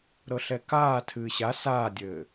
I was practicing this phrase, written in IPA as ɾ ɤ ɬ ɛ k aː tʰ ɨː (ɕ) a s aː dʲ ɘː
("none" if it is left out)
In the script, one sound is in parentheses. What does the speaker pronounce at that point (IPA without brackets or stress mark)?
ɕ